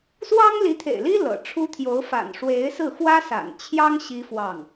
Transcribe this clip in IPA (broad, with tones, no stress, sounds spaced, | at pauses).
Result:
s w ɑ˥ ŋ l i˧˥ t̪ʰ ḛ˨˩ ɪ̯ l i˥ l ɤ̰˨˩ ʈ͡ʂʰ u˥ t̪ʰ j o˧˥ ʊ̯ f a̰˨˩ n ʂ w e˧˥ ɪ̯ s ɹ̩˥˩ x w ä˥ s a̰˨˩ n t͡ɕʰ j ɑ˥ ŋ ɕ i˥ f w ɑ˥˩ ŋ